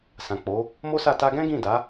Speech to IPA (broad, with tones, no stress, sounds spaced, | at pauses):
s ã˨ k͡p o˨˦ | m o˦ s a˦˨ t a˧ ɡ ɛ̃˦ ɡ ĩ˦˨ d a˨˦